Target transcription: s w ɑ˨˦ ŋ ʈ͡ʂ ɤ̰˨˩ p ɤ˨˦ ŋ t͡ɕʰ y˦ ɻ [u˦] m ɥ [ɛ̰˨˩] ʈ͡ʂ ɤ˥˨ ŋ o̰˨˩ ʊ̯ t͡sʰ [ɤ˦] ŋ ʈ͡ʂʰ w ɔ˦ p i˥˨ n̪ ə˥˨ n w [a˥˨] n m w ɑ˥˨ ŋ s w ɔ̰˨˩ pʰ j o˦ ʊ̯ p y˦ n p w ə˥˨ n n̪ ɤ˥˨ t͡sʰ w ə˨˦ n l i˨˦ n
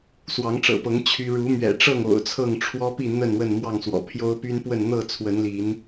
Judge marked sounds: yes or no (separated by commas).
no, yes, no, no